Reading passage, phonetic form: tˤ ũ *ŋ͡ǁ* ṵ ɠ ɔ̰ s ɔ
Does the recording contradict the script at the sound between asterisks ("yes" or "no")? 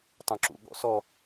yes